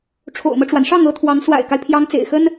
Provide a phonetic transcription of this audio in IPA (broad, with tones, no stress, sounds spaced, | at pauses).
ʈ͡ʂʰ o̰˨˩ ʊ̯ m ɤ˦ ʈ͡ʂ w a˩ n ʂ ɑ˥˩ ŋ ɤ˧˥ t̪ʰ w ɑ˧˥ ŋ s w a̰˨˩ ɪ̯ k a˦ ɪ̯ pʰ j ɑ˧˥ ŋ t͡s ḛ˨˩ ɪ̯ x ə˥ n